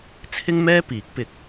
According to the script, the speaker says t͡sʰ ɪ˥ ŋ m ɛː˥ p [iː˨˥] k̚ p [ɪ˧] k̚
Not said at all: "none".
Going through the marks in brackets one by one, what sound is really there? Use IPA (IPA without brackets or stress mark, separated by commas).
iː˨˥, ɪ˧